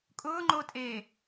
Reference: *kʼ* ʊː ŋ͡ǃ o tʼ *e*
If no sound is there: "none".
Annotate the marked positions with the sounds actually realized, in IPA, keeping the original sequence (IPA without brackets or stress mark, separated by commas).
kʼ, eː